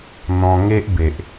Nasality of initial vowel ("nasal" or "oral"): nasal